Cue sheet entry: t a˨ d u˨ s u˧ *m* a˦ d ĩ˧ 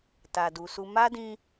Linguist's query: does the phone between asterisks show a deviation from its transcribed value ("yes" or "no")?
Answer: no